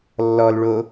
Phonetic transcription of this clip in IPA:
lː ɔ l ɭ o

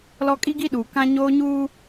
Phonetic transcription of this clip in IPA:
l ɔ˦ kʼ i˦ ɡ i˦ ɗ uː˨ k ã˦ ɲ oː˦ ɲ uː˦

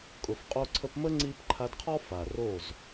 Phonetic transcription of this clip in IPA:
kʼ ʊ˨ f qʼ o˧ ǀʰ ə˧ p m ə˦ ŋ͡ǀ i˦ p ǃʰ a˧ d qʰ ɔ˦ f a˨ r o˦˨ z

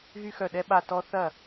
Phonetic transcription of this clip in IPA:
ɣ y˦˥ x œ˦˨ ɗ ɛ˦˥ ɓ a˦˨ t ɔ˦˥ θ ɐ˦˨

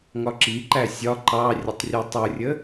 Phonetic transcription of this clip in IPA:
ŋ ɒ ǁ i ǃ æ sʲ ɒ ǃ ɑ rʲ ə tˤ rʲ ɒ tˤ u rʲ ə

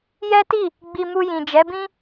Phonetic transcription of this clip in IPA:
j ɛ˦ t i˦˨ | ɡ͡b i˧ m u˧ j ĩ˨ d͡ʒ ɛ˨˦ b ĩ˦

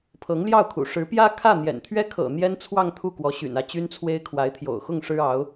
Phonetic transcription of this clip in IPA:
pʰ ɤ˧˥ ŋ l j ɑ˥˩ ʊ̯ kʰ ṵ˨˩ ʂ ɻ̩˧˥ p j ä˥ kʰ ä˥˩ n̪ j ɛ̰˨˩ n t̪ʰ ɥ ɛ˥ kʰ ɤ̰˨˩ n̪ j ɛ˥ n t͡sʰ w ɑ˥˧ ŋ t̪ʰ u˥˩ k w ɔ˧˥ ɕ y̰˨˩ n ä˥˩ t͡ɕ y˥ n t͡sʰ w e˥ ɪ̯ kʰ w a˧˥ ɪ̯ t̪ʰ j o̰˨˩ ʊ̯ x ʊ˥˩ ŋ ʂ ɻ̩˥ ɑ˧˥ ʊ̯

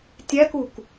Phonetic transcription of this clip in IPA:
tʲ æ k u k

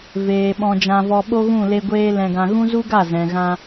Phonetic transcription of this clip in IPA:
v eː˨ ɓ ɔ̃˧ d͡ʒ ã˧ v ɔ˧ ɓ o˦ ɣ ũ˦˨ l e˧ ɡʷ eː˧ l ɛ̃˧ ɡ ã˧ ɣ ũ˦ z u˦ ɡ a˦˨ z ɛ̃˨ ɣ ã˧

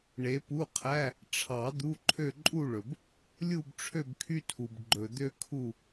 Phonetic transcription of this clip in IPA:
ɳ e˨˦ p u˧˥˧ qʰ æ˧˥˧ | ʈ͡ʂʰ ɑ˨˩˦ d̪ u˧˥˧ ǃʰ ø˥˧ ǃʼ u˥˧ ɭ ɵ˨ b | lʲ u˥˧ b ʈ͡ʂʰ ø˥˧ b kʰ y˥ tʰ u˨ b ɡ͡ǃ ɵ˨ d̪ ø˥ kʰ u˥˧

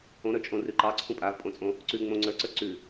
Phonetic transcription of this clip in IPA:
õ ɾ ə˞ t͡ʃʼ õ r ʉ ǃ ɑ ǀʰ ũ pʼ a v pʼ õ t͡sʼ õ | ǀ ʉ ŋ͡m õ ŋ͡ǀ ə˞ ǀ ə˞ ǀ ʉ

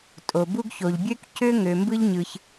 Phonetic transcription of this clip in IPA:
tʼ o˩ b u˥ ɡ ç o˩ ʎ bʲ ø˥ k c ø˥ ŋ ø˩ m b ɯ˥ ʎ ɲ ɯ˩ ç

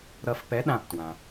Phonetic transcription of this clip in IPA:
ɾ ʌ˧ f p ɛ˨˥ ɗ ã˧˩ p t w ã˩

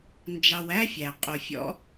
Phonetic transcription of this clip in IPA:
n d͡ʒ ɑ˨ w æ˦ fʲ æ˨ qʼ o˨ fʲ ɔ̰˦

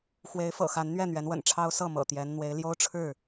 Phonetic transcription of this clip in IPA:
x w e˨˦ ɪ̯ f ɤ̰˨˩ x a˨˦ n n̪ ɥ ɛ˥˨ n̪ ɥ ɛ˨˦ n w ə̰˨˩ n ʈ͡ʂʰ ɑ˦ ʊ̯ s ɤ˥˨ m ɤ̰˨˩ t̪ j ɛ˨˦ n n̪ w e˨˦ ɪ̯ l j o˦ ʊ̯ ʈ͡ʂʰ ɻ̩˥˨

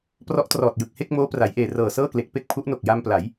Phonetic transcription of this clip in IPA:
p r ɔ˦˥ ʔ t r ɔː˨˩ t̚ j ɯ˨˩ k̚ h e˥˩ k̚ m oː˦˥ p r a˩˦ j ʔ eː˨˩ r ɤː˨˩ s ɤː˥˩ k l e˨˩ k̚ p e˥˩ k̚ pʰ u˦˥ ʔ n o˨˩ k̚ j a˧ m p l a˩˦ j

